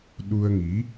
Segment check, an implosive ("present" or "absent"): present